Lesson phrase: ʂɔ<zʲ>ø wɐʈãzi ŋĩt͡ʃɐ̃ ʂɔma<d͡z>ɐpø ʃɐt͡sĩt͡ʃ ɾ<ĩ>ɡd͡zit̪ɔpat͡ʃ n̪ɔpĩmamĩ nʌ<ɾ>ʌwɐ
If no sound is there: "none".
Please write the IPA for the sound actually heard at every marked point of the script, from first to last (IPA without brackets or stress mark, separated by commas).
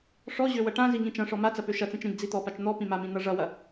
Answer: ʑ, t͡s, ĩ, ʐ